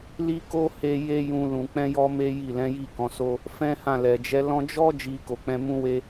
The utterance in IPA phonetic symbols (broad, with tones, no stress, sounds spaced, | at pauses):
l i˦ k o˦ h e˧ j e˦ j ũ˧ l ũ˨ k͡p ɛ̃˧ j ɔ˧ m e˦ j i˦˨ l ɛ̃˨˦ j i˦˨ k ɔ̃˨˦ s o˦ | f ɛ̃˦ h ã˦˨ l ɛ˨ d͡ʒ ɛ˨˦ l ɔ̃˧ d͡ʒ ɔ˦ d͡ʒ i˧ k o˨ k͡p ɛ̃˧ m ũ˦ w e˦